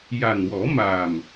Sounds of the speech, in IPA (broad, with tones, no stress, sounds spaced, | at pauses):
j a˨˩ n w ɔ˨˩˦ m aː˨˩ m